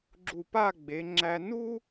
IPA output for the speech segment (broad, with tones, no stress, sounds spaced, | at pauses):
ɡ͡ǁ u˧˩ p a˥˧ ɡ͡b e˩˧ ŋ͡ǁ æ˧ n u˥